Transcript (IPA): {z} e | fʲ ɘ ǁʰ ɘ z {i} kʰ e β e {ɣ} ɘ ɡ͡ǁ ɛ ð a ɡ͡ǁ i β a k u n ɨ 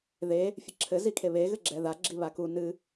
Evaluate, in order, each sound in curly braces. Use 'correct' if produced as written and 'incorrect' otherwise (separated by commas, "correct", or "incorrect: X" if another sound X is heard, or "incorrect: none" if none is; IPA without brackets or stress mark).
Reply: incorrect: ð, correct, correct